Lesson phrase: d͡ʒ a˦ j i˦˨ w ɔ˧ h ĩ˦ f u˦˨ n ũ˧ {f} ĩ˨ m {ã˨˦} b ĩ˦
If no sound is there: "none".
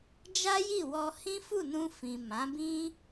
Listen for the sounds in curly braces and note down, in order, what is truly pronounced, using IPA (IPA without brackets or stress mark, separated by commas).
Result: f, ã˨˦